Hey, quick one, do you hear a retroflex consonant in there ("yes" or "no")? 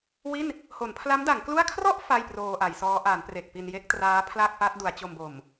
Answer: no